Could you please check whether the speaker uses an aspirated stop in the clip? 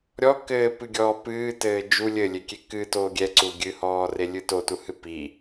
no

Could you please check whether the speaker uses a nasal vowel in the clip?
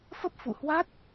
no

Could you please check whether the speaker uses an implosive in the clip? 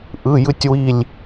no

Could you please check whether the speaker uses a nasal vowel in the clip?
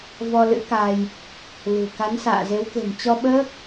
no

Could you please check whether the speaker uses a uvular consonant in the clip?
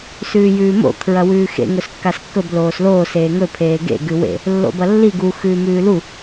no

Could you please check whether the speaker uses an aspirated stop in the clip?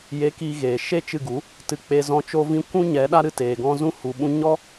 no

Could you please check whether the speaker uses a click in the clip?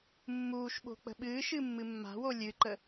yes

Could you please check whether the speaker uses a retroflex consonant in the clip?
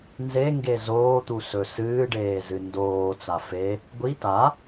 yes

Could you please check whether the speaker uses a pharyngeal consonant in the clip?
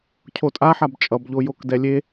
yes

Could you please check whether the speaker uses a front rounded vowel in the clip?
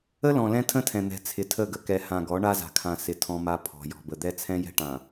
no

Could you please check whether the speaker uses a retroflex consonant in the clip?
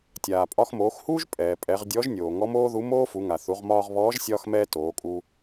no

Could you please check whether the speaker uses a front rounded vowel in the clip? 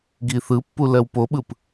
no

